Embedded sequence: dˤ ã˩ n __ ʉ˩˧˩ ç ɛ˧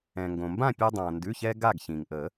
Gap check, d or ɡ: d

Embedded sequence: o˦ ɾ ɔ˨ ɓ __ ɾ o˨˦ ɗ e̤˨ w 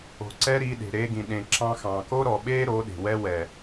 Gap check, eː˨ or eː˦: eː˦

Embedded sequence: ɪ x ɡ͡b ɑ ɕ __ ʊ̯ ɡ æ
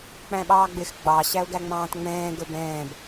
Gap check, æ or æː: æ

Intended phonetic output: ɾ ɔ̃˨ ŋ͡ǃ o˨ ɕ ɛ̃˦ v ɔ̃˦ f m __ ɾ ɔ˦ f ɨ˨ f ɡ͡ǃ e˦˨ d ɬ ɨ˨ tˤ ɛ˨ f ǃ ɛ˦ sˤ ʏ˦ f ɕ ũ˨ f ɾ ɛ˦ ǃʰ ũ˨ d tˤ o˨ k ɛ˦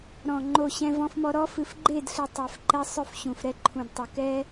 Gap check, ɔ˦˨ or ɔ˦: ɔ˦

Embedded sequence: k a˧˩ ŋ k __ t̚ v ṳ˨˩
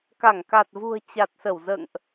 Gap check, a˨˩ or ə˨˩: a˨˩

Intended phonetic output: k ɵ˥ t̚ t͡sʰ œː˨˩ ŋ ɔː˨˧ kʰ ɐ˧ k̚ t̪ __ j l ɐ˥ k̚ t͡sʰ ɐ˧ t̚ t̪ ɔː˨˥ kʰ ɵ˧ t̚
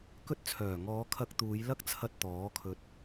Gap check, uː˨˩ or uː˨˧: uː˨˧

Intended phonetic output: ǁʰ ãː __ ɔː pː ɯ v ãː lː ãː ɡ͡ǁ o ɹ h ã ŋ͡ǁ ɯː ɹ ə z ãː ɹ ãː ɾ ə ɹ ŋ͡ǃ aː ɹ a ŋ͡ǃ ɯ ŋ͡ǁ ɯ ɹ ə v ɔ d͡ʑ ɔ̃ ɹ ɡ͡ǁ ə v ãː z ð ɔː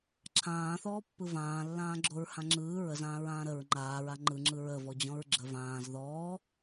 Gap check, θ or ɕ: θ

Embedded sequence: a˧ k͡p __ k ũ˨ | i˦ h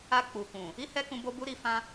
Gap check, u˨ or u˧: u˨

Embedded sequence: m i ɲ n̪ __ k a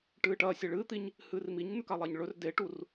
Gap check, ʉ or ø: ʉ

